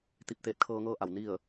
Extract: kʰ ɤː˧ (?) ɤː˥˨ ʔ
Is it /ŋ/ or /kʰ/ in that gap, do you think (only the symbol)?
ŋ